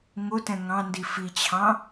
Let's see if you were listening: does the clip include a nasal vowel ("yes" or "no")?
yes